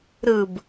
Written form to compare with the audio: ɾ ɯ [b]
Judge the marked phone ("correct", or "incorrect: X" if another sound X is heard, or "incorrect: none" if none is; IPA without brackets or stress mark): correct